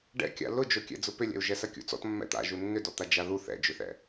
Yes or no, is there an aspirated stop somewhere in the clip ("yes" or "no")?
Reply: no